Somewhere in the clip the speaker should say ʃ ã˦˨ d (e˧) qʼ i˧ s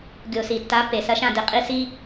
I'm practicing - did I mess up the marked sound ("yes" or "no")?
no